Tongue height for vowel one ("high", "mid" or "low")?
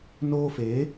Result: mid